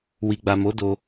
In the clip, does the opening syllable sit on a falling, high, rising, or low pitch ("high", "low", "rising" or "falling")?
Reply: low